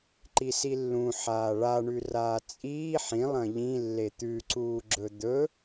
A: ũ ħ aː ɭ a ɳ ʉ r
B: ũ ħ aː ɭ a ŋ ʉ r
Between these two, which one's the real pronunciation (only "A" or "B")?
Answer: A